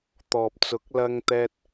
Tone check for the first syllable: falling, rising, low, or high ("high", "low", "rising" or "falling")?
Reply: low